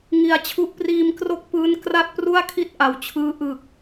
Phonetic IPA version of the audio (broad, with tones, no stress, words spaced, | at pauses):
ŋi˨˩a̯t͡ɕʰu˦˥ʔ priː˧mkro˦˥k̚pɯː˦˥n kra˥˩t̚ pru˥˩a̯kʰi˥˩t̚ ʔa˨˩wt͡ɕʰɯː˦˥ ʔɯ˨˩k̚